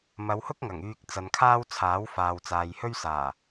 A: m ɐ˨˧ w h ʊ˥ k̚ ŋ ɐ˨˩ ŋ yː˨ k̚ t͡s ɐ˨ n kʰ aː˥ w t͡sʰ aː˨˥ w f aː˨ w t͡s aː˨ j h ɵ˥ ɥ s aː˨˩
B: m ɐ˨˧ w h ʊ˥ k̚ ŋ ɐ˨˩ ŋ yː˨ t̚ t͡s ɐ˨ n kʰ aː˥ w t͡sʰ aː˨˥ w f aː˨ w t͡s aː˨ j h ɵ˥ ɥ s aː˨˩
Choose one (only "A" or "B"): A